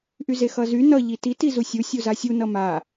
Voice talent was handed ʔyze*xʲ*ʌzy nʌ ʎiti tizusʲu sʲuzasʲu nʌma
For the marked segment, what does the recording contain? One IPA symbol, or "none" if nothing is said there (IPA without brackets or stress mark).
x